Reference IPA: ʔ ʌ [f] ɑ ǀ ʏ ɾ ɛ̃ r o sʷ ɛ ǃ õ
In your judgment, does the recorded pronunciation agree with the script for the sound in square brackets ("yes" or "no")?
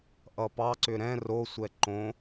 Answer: no